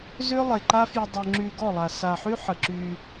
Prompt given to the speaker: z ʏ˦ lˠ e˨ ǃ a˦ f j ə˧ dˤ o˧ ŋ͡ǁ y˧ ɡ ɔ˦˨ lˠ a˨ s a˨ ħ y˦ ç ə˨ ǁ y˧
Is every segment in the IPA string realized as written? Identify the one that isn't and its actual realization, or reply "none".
ç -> ħ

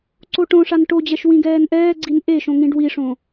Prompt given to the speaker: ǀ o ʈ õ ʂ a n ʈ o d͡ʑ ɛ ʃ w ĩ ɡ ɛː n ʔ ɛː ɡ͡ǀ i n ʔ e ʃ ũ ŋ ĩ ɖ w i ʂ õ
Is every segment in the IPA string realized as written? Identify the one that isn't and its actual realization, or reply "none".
ũ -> õ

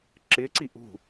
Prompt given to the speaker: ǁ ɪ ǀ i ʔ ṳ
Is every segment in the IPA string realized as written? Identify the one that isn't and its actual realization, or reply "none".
none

